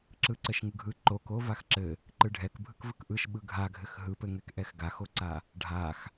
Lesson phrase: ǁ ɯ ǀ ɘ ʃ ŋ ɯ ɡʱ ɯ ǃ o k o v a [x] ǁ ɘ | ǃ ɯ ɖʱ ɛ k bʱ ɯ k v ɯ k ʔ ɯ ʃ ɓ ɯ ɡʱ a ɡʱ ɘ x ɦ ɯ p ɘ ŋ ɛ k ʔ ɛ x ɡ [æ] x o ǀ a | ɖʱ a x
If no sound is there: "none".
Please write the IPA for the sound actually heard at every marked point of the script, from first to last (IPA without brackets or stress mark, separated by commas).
x, a